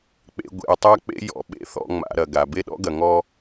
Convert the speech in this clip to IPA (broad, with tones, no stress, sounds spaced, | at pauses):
k͡p ḛ˨ ɡʷ ḛ˨ ʊ̯ tˤ a˦ k͡p ḛ˦ j ɔ̰˨ ɓ ḛ˦ θ ɔ̰˨ ŋ͡m a̰˨ ɾ ɐ˨ ɡ a˨ b e˦ ɗ ɔ̰˦ ɡ ɐ˨ ŋ ɔ˦